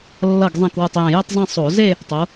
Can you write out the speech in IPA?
lː ʌ˧˩ ɡ zˤ ɛ̃˧˩ k w ɯ˧˩ tˤ j ẽ˧˩ j e˥˧ tˤ zˤ ẽ˥˧ sˤ o˧˩˧ z e˥˧ | tˤ o˨˦

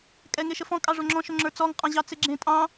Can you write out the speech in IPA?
kʼ ɛ ŋ e ʃ ə f ɔ̃ kʼ ɑ ʐ o ŋ͡ǁ ɔ̃ ʃ o ŋ͡ǁ ə˞ t͡s ɔ ŋ qʼ ɑ̃ ʑ ɑ t͡s e ɡ͡ǁ ẽ tʼ ɑ̃

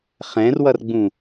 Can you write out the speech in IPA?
χ ɛ̃ r w ʌ r ɡ͡b ũ

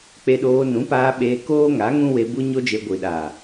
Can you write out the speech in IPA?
k͡p e˧ ɗ oː˧ n ũ˨˦ p aː˧ ɓ eː˧ k oː˦ ŋ a˨˦ ŋ ũ˦ w e˧ b u˦ ɲ o˦ d͡ʒ e˧ ɡʷ i˨ ɗ aː˨

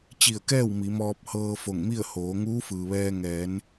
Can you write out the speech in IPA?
t͡ɕ i˧˩ ə̯ k ɛː˥˨ w m i˩˧ m ɔː˧ p̚ h ɤː˧ f o˧˩ ŋ m i˥˨ ə̯ h oː˩˧ ŋ uː˧˥ f ɯː˩ ʋ ɛː˧ ŋ ɛː˩˧ n

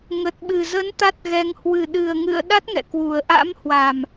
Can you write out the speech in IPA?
ŋ ə˨˩ t̚ ɓ ɨ˨˩ z ə˨˦ n t̪ a˦˥ t̚ ɣ ɛ˧ ŋ h w ɨ˨˩ ɗ ɨ˨˩ ə̯ ŋ ɨ̰˧˨ ə̯ ɗ a˦˥ t̚ ŋ ɛ̰˧˨ k w u˨˩ ə̯ ʔ a̰˧˥ m h w a˨˩ m

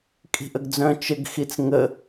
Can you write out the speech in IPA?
kʼ i̤ ʔ ə ɡ d͡z œ̃ t͡ʃ ə ɡ x i t͡s ŋ ə

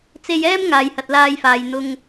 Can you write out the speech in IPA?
t͡s e˧ j ɛː˥ m ŋ aː˨ j h ɐ˨ t̚ l aː˧ j f aː˨ j n̪ ʊ˧ ŋ

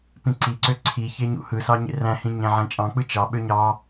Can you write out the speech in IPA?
p ĩ ǀ i ǀ ø ǀʰ i ç e ɲ ṵ h ɯ s ɑ ɲ ḛ r æ̃ h ĩ ɲ æ̃ ʕ æ̃ t͡ʃʼ ɑ̃ k͡p ɯ t͡ʃ ɑ ɓ ø ɲ ɑ

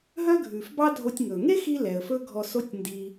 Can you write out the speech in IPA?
ɦ œ˥ ɡʱ ʉ˩ f b ɑ˥ dʱ o˧ tʲ ŋ ɵ˩ ŋ e˥ x i˧ l ɛ˩ ə̯ f ɵ˥ ɡʱ ɔ˧ s o˥ tʲ n d i˧

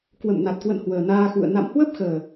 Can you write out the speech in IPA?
k w ə̰˧˨ m n a˨˩ t̚ k w ə̰˧˨ n h w əː˨˩ n aː˧ x ṵ˧˨ ə̯ n a̰˧˨ m h w ə˦˥ p̚ x əː˨˩

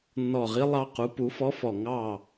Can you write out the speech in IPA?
nː ɔ˧˩ ʁ i˧˥ lˠ ɑ˧˥ q u˩˥ p u˩˥ f ɔ˧˥ f ɔ˧˩ ŋ ɑ˥˨

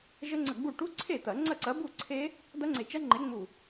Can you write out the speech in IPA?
ʒ ə˦˥ ŋ͡ǀ ə˧˩ ɡ͡b u˥˩ ʈ u˦˥ ǀʰ e˥˩ t̪ ɐ˨˩˦ ŋ͡ǀ ɐ˥˩ ǀ ɐ˨˥ b u˥˩ ǀʰ e˦˥ | d̪ ɐ˦˥ ŋ͡ǀ e˧˩ t͡ʃ ɐ˦˥ ŋ͡ǃ e˨˥ ŋ͡m u˧˩

